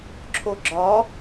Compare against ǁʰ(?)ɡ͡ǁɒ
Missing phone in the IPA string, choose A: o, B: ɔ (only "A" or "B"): A